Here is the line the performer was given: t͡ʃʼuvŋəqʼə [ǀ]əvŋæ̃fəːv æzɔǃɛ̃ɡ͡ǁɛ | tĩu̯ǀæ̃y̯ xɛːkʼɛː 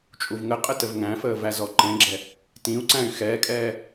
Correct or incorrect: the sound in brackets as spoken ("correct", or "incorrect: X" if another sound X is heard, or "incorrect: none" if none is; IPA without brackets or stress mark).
incorrect: t